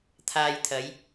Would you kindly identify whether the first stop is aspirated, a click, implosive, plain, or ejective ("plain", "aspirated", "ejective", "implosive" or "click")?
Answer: aspirated